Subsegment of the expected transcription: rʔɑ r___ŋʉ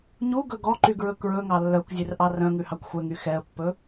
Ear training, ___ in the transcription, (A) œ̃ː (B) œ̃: B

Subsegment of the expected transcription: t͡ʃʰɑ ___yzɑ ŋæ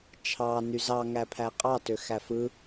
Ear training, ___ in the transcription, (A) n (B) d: A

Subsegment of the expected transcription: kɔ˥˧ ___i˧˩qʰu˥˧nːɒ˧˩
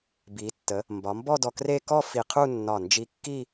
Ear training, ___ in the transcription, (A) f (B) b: A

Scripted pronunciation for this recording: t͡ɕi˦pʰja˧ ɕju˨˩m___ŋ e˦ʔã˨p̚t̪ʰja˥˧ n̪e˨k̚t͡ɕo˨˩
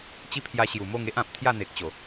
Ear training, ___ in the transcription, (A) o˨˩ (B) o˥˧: B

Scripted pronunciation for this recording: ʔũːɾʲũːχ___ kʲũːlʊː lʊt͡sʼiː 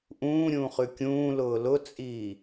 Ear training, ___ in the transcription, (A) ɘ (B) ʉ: B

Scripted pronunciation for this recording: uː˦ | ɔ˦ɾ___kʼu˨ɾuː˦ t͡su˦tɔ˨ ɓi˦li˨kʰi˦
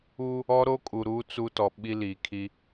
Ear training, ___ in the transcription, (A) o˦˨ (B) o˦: B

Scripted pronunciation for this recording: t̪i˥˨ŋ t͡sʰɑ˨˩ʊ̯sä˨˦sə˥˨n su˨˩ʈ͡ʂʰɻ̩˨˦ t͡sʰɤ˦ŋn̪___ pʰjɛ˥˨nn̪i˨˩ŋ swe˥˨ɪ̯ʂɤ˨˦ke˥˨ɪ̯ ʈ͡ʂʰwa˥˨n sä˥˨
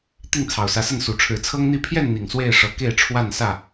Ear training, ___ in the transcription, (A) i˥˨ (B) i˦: A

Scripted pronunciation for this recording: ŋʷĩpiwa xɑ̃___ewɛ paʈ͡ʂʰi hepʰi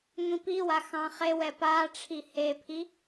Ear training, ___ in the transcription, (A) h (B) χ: B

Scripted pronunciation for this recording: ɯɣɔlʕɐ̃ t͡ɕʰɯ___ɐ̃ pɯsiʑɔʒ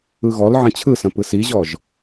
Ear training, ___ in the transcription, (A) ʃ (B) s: B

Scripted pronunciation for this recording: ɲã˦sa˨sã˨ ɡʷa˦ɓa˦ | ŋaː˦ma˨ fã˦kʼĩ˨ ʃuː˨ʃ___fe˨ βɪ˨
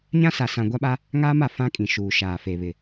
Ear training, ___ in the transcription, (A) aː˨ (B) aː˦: A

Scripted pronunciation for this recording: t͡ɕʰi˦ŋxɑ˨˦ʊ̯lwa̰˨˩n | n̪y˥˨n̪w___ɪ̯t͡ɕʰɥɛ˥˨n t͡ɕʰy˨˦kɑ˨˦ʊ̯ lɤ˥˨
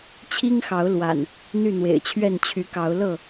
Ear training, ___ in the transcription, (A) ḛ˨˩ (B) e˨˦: A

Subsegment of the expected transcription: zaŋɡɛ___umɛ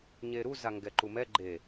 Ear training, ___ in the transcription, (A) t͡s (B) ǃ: B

